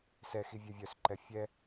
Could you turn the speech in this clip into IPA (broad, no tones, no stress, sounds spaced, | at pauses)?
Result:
s ɛ x i vʲ ɛ vʲ œ s ǃ ɛ fʲ ɛ